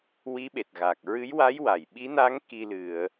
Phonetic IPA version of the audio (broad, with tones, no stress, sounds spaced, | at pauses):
w i˧˥ ɓ e˨˩ t̚ ɣ aː˨˩ k̚ ɹ ɨ˧˥ j w a˧˥ j w a˨˩˨ j ɓ i˧˥ n a˧˥ ŋ k i˧ l ɨ˨˩˨ ə̯